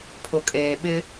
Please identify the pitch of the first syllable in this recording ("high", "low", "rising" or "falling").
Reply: low